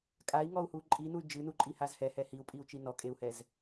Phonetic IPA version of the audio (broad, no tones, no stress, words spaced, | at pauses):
kʼai̯ŋɔu̯hu ǃʼinuy̯ d͡ʒɨnuǃʼihaz hɛhɛ hiu̯pʼiu̯t͡ʃi nɔkʼeu̯hɛz